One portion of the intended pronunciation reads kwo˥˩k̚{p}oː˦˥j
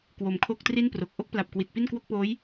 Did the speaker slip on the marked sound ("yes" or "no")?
no